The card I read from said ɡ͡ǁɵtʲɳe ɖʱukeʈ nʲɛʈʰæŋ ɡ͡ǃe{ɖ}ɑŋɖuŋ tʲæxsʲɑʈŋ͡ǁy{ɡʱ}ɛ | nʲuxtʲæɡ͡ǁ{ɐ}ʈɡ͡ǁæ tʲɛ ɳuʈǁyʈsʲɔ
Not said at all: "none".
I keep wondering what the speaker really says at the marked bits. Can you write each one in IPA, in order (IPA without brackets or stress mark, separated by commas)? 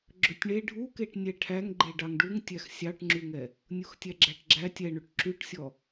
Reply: ɖ, ŋ, æ